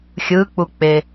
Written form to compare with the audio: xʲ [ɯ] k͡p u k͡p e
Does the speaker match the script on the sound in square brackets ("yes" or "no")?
yes